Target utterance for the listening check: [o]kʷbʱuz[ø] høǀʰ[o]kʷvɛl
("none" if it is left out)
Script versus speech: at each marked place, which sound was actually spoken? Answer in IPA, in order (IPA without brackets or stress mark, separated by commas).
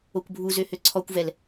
o, ø, ɔ